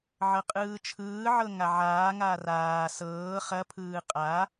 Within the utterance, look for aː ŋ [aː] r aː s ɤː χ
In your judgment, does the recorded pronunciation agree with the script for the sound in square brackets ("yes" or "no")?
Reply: yes